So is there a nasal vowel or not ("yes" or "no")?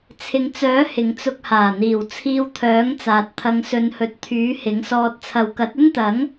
no